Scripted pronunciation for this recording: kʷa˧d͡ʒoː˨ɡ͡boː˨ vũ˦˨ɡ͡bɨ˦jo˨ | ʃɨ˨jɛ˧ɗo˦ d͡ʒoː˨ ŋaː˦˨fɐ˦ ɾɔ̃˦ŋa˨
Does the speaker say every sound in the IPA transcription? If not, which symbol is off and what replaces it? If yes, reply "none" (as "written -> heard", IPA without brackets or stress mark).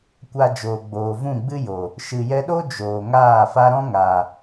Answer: ɐ˦ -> a˦